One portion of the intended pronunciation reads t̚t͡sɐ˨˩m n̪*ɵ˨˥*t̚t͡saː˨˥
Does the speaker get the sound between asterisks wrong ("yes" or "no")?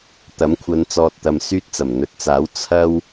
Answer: yes